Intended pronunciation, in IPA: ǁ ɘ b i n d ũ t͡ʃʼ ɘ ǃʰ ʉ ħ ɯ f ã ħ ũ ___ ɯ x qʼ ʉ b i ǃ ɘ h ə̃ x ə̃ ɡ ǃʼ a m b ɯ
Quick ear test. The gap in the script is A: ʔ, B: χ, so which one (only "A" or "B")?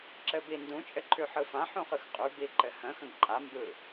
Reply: B